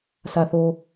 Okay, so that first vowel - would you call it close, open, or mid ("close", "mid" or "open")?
open